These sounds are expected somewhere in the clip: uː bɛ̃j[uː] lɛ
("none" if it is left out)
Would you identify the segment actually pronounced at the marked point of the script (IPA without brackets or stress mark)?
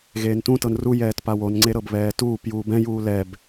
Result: uː